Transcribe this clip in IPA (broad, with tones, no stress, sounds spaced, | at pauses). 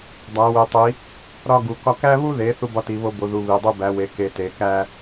dˤ æ˩˧ w e˩˧ tˤ i˩˧ | ɾ ɒ˦ ɡ u˩˧ k ɒ˦ k æ˦ β u˦ ð e˩˧ θ u˦ b ɒ˦ t i˩˧ β o˦ b o˩˧ ð u˩˧ β i˩˧ dˤ u˦ b æ˩˧ w e˩˧ k e˩˧ t e˩˧ k æ˦